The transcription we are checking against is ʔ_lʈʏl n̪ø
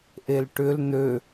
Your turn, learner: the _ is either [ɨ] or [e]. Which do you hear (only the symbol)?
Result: e